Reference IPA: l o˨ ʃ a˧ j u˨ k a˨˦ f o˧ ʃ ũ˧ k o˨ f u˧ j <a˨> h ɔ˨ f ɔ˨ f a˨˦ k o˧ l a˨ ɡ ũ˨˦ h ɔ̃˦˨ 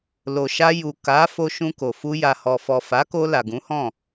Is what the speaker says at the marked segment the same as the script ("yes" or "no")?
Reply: yes